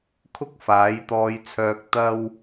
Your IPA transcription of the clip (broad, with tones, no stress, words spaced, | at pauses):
kʰʊ˥k̚faː˨˥jt̪ɔː˧jt͡sʰœː˧k̚ t̪ɐ˥w